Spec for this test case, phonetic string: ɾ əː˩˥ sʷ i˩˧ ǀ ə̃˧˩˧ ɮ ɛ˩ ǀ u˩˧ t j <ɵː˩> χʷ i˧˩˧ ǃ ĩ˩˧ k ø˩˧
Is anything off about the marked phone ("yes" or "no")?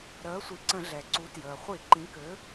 yes